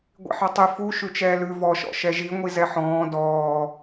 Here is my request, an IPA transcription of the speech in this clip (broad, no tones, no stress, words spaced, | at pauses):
ɡʷḭħɔtˤʉ fu ʃʉt͡ʃɛːlʉ vɔʃɔ̰ ʃɛʒi ŋʷizɛħɔ̃ː dɔː